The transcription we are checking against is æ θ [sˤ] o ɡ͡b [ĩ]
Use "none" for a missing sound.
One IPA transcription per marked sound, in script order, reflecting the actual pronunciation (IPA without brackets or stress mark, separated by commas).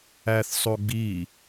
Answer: sˤ, i